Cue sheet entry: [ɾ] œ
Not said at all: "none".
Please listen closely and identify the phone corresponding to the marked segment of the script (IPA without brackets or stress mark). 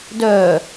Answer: d